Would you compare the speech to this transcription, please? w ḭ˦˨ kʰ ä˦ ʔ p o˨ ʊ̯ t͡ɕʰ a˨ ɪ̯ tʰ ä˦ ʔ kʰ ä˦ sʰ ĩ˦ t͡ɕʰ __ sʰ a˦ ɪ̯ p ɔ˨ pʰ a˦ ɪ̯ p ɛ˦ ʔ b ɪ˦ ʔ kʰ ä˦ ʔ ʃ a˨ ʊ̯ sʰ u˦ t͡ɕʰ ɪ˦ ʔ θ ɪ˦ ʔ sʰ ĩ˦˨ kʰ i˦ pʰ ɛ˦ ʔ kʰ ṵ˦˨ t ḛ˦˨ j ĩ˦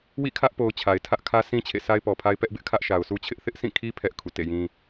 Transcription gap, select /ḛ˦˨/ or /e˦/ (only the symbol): ḛ˦˨